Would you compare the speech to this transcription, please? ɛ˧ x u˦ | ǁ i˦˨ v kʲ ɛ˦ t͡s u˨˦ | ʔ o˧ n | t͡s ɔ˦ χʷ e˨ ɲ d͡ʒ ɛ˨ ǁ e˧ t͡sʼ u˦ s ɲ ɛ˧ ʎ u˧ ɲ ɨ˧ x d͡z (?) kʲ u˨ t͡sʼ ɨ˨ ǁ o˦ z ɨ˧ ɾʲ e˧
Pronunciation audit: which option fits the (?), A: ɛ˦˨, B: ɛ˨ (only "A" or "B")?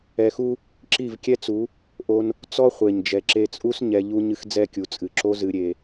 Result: A